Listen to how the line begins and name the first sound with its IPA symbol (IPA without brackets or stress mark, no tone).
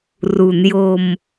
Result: r